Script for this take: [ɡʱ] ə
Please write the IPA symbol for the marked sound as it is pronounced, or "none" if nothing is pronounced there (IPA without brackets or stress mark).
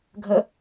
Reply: ɡʱ